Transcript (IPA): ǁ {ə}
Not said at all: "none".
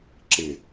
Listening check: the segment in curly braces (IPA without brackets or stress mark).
ɪ